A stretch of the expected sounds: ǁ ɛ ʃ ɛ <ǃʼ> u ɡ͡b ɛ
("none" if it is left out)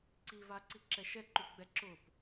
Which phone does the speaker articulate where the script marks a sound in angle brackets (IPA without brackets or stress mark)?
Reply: ǃ